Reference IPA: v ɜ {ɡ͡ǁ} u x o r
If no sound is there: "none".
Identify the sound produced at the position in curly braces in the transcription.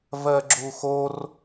ɡ͡ǁ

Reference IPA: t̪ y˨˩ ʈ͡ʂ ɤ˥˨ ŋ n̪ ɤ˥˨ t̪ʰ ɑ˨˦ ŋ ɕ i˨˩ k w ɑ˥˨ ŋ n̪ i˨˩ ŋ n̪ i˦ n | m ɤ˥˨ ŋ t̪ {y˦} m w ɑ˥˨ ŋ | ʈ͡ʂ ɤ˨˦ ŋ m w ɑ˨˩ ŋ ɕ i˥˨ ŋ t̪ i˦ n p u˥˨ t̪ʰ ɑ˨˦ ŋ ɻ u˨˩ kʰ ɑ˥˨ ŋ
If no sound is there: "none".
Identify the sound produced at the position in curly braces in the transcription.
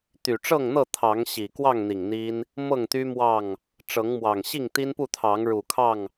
y˦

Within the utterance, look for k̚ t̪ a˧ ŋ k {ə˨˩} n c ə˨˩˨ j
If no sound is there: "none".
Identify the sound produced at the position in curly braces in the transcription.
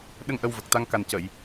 a˨˩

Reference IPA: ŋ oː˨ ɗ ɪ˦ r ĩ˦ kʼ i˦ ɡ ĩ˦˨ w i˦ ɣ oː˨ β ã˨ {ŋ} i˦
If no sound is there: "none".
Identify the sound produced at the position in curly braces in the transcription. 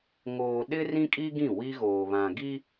ɡ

